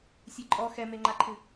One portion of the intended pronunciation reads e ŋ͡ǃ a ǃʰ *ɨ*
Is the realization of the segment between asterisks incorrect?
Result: no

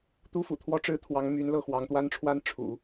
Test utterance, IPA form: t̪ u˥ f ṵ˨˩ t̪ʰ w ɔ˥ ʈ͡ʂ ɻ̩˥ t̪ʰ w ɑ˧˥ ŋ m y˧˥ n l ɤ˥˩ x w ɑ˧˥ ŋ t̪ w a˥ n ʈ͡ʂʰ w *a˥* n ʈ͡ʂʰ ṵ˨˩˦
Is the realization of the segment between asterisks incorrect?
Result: no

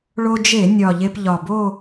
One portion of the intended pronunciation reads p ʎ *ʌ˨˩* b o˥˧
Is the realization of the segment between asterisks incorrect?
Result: yes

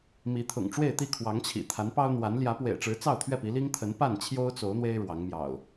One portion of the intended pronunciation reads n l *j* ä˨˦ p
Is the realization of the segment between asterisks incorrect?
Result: no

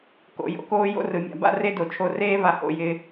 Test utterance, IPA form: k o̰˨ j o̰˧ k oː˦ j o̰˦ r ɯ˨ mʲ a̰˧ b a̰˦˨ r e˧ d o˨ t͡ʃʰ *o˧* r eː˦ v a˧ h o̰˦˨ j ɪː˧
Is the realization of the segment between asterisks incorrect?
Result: no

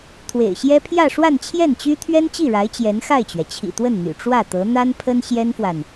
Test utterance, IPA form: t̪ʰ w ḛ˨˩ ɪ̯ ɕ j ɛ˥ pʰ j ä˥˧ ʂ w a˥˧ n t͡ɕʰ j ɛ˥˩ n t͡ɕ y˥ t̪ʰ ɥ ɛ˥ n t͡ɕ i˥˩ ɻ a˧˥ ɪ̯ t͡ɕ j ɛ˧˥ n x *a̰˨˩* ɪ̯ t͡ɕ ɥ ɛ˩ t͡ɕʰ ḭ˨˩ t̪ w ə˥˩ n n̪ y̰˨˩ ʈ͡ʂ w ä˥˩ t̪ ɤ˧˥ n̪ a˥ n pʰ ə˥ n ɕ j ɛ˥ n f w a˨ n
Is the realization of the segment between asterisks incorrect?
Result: yes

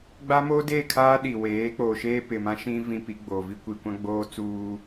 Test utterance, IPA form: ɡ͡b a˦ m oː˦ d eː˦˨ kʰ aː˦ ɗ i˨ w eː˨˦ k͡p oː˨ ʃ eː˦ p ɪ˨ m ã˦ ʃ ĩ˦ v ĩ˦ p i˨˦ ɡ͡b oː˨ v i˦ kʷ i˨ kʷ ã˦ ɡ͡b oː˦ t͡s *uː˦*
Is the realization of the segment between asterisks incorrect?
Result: no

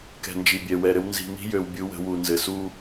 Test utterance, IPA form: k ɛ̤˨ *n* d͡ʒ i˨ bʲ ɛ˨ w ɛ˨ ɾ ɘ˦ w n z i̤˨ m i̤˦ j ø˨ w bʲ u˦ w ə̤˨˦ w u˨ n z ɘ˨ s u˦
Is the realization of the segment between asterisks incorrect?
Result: no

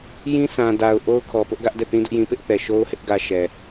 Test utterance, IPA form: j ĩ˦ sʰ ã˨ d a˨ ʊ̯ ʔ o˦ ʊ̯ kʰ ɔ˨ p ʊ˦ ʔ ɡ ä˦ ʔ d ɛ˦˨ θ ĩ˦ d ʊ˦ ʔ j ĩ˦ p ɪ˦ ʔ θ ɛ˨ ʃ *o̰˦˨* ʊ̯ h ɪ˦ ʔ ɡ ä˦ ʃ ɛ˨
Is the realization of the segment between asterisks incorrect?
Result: yes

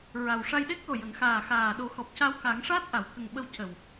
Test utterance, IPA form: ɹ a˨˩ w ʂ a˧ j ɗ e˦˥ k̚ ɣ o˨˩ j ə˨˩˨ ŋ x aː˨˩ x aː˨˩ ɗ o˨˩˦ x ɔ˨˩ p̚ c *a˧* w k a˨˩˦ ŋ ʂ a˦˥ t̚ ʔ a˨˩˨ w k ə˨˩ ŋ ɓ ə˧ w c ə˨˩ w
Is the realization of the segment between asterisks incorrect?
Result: no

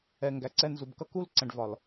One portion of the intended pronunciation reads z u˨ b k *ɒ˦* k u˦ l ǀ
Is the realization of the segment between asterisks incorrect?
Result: yes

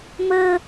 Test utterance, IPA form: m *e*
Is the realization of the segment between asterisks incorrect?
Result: yes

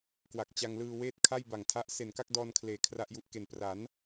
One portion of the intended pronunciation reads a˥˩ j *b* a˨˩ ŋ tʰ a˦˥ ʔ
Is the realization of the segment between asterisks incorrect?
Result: no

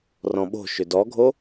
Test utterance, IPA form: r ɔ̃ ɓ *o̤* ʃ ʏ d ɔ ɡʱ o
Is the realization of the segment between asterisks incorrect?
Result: no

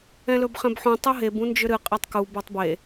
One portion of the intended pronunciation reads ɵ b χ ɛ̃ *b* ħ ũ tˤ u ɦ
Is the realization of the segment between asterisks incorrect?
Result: no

